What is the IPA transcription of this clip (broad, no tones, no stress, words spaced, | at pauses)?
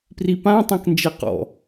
pripãtˤɛ̃knd͡ʒe qɔ̰